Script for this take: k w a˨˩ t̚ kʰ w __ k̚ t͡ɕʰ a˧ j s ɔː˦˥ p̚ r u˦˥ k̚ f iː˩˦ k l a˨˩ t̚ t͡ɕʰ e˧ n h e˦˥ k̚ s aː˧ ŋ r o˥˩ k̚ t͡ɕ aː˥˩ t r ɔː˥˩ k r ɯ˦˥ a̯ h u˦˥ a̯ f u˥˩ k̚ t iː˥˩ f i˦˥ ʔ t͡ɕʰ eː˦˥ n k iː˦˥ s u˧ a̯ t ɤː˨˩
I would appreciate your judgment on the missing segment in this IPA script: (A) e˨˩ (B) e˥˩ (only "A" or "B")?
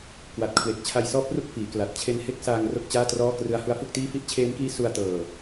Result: A